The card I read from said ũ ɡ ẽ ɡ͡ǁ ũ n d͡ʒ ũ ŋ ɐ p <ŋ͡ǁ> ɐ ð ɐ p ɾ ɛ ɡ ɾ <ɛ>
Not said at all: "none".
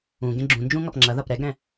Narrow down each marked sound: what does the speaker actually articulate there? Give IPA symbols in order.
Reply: ŋ͡ǁ, ɛ̃

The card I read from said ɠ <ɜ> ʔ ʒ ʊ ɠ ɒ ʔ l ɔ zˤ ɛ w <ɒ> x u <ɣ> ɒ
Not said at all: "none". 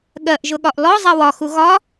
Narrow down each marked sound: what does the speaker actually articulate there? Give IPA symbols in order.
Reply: ɜ, ɒ, ɣ

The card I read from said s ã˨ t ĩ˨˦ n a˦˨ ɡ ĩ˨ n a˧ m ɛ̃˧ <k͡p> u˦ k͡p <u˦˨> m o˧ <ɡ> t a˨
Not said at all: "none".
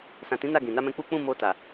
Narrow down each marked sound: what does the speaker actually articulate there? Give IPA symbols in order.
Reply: k͡p, ũ˦˨, none

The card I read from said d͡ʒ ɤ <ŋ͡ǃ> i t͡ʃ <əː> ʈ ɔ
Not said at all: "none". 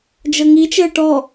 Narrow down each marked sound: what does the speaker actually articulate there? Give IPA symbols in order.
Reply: ŋ, əː

